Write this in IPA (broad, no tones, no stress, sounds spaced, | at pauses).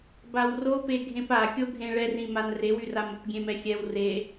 b a w r o p e ɡʱ ẽ p a kʲ o ɡʱ ẽ ɭ ɛ r ĩ m a n r e w y r a m o p ɡʲ ẽ m ɛ xʲ ɛ w r e